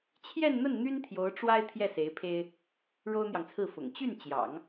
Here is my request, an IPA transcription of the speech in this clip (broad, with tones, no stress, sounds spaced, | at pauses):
t͡ɕʰ j ɛ˥˧ n n̪ ə˥˩ n n̪ y˥ n t̪ʰ j o˧˥ ʊ̯ ʈ͡ʂ w a˥ ɪ̯ t̪ʰ j ɛ˥˩ s e˧˥ ɪ̯ pʰ e˥ ɪ̯ | ɻ o˥ ʊ̯ n̪ j ɑ˨ ŋ t͡sʰ ɹ̩˥˩ f ʊ̰˨˩ ŋ t͡ɕ y˥˩ n t͡ɕ j ɑ̰˨˩˦ ŋ